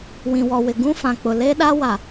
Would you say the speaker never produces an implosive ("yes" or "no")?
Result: no